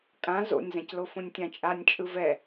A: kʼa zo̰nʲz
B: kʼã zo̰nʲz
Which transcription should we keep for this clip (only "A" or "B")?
B